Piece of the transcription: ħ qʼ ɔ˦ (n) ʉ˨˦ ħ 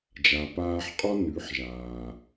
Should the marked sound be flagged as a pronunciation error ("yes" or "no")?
no